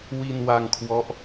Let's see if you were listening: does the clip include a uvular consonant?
no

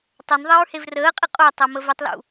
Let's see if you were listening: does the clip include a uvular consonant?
yes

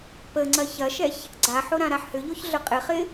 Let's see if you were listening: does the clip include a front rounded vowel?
yes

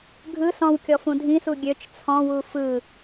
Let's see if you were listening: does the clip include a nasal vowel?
yes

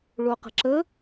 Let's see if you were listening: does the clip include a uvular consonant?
yes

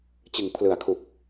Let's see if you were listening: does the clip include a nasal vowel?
no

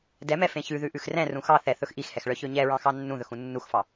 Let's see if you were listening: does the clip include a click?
no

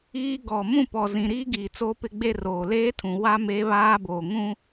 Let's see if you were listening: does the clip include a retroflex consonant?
no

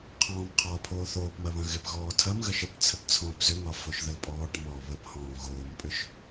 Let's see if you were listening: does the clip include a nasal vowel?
yes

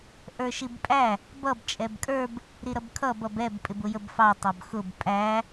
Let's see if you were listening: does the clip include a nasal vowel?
no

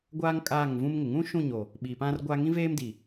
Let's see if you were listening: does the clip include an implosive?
yes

